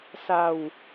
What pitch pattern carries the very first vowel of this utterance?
low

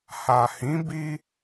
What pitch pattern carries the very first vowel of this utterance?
low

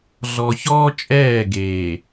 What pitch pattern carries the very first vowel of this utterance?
low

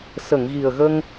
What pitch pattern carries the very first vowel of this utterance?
low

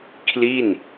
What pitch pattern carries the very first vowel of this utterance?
falling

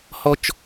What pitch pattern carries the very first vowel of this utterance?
high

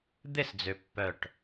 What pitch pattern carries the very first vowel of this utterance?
falling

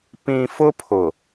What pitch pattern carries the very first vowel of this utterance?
low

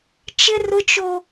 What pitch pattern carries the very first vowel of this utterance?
high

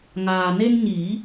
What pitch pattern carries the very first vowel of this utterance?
low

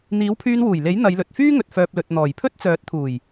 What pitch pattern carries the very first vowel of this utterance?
rising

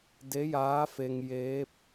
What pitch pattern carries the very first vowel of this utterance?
rising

